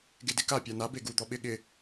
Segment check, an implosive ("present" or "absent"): present